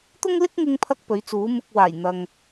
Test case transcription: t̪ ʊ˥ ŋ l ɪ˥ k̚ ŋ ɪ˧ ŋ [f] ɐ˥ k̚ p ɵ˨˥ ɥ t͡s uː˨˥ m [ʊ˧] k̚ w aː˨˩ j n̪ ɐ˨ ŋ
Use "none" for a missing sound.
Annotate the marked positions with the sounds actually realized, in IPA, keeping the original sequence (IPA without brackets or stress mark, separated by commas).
pʰ, ʊ˧